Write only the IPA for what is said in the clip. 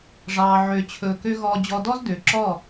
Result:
ʐ ɑː˧ ʕ øː˧ t͡ɕʰ ɵː˧ k ø˦ ɣ ɔː˧ d͡ʑ ɔ˧ d ɔ˦ z d ø˨˦ ǁ ɔ˦˨

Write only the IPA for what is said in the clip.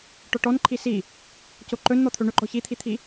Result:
ʈ ɔ ʈ ɔ n ǃʰ i s i | c o ǃ ɵ n n̪ ɔ t̪ʰ ɵ ɳ ɵ ɡ͡ǃ ɔ ç i t̪ʰ i t̪ʰ i

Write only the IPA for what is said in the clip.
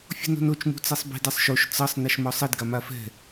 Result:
fʲ ṳ n o̤ n o t͡ʃ m ṳ t͡s e sˤ b e̤ d ɛ sˤ ʃ o ʃ t͡s ɤ sˤ n a ʃ m ɔ sˤ i d ɡ a m a f ɛ̤

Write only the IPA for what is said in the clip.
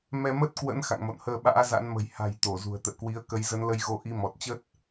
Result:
m ɛ˧ m ə˦˥ t̚ k w ə̰˧˥ n x a̰˧˨ ŋ m o̰˧˨ n h əː˧ ɓ a̰ː˧˥ z a̰˧˥ n m ə̤˨˩ j h a̤˨˩ j t̪ o˧˩ z ṳ˨˩ ə̯ t̪ ə̰ː˧˨ k w i˨˦ ə̯ k ə˨˦ j z ə˨˦ n l ə˧ j ɣ o˨˦ ʔ i˧ m ɔ˨˩ t̚ t͡ɕ ə˦˥ t̚

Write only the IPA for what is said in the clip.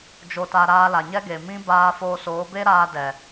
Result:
d͡ʒ o˧ t a˧ ɾ aː˧ l a˨ ɲ ɛ˦ ɡ e˨ m ĩ˦ b aː˧ f oː˧ s oː˨˦ b e˦ ɾ aː˧ d ɛ˨

